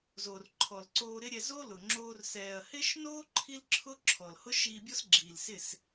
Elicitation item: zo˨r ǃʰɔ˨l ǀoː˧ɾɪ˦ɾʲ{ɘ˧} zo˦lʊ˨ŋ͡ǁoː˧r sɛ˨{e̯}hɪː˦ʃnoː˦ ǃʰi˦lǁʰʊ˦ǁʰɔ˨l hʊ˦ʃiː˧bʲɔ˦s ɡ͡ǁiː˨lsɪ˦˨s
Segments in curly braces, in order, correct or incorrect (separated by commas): incorrect, incorrect